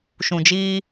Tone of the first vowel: low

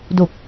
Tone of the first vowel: low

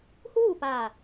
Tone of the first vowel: falling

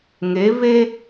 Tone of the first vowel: rising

